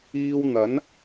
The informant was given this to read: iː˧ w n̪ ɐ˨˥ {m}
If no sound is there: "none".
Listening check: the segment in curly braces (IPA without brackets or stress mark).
n